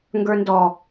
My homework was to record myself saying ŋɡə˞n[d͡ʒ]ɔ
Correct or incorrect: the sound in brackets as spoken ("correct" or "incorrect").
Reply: incorrect